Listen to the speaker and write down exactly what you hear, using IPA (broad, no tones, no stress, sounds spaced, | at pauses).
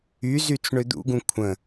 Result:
y z y t͡s ɳ ø d̪ ṵ ɡ ũ kʷʰ ə̃